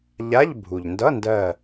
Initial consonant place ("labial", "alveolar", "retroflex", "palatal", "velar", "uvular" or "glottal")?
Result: palatal